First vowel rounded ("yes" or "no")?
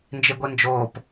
no